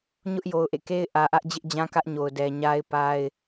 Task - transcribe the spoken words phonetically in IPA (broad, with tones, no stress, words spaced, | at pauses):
ɲʊ˦ʔ jo˨ʊ̯ʔḛ˦˨ke˦ɪ̯ ʔä˨ʔä˦ʔ d͡ʑɪ˦ʔd͡ʑã˦ kä˦ʔɲo˨ʊ̯ dɛ˨ɲa˦ɪ̯ pa˦ɪ̯